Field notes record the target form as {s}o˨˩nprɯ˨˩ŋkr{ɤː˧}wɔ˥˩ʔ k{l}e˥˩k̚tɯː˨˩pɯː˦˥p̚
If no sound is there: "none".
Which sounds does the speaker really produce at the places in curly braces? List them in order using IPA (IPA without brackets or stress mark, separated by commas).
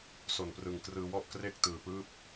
s, ɯː˧, r